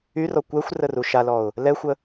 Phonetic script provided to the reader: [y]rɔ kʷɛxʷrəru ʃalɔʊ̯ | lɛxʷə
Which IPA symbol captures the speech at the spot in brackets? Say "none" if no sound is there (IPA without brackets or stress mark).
y